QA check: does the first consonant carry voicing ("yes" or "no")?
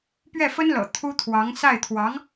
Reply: no